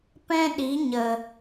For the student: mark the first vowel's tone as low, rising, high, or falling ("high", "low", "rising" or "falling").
high